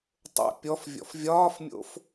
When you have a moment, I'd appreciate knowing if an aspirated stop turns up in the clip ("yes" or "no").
no